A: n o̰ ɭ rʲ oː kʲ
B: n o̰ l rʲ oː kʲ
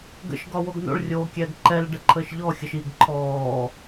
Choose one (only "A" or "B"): A